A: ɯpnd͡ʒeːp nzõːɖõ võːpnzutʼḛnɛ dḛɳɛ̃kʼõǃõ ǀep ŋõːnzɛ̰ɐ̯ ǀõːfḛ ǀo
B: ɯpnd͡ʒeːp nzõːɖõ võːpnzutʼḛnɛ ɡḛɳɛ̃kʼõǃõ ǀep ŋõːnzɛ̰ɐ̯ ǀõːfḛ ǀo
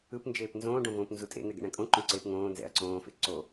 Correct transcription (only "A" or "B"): B